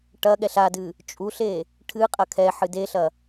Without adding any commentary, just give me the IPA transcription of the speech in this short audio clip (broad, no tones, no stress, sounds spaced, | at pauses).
ʈ ɐ ɠ ɛ ɬ a d ɨ | t͡ʃʼ u ɬ e | ʈʰ ɨ qʼ ɐ kʰ ɛ ħ ɨ d e ɬ ɐ